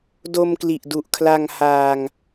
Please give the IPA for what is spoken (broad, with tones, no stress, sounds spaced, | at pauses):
d o˧ m k l i˨˩ ʔ d u˨˩ ʔ kʰ l a˧ ŋ h aː˧ ŋ